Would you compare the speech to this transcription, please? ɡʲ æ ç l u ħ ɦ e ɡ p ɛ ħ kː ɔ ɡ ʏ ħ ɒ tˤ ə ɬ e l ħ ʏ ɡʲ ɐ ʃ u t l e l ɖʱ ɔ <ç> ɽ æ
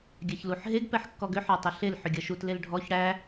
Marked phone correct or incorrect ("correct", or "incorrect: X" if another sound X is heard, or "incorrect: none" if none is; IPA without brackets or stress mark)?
correct